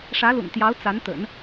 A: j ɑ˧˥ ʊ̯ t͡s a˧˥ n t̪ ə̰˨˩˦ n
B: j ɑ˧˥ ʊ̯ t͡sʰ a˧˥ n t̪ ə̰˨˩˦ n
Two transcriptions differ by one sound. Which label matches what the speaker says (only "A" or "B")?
A